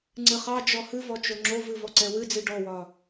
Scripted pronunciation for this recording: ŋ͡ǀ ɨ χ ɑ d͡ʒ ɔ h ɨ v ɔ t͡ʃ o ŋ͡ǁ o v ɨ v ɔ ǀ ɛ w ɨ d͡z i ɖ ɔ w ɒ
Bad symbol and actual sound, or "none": none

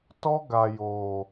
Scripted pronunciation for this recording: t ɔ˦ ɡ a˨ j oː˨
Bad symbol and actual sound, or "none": none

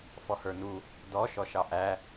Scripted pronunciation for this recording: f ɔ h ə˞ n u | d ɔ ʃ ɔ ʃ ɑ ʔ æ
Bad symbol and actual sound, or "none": none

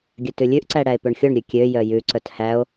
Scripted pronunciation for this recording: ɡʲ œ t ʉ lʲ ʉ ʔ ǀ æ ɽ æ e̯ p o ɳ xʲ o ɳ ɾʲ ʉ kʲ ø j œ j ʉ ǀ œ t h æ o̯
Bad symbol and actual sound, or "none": none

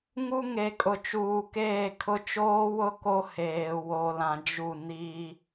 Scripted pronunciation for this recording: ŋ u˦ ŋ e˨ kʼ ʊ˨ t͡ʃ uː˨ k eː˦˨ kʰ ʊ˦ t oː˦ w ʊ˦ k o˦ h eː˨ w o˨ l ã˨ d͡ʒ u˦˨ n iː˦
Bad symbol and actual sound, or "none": t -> t͡ʃ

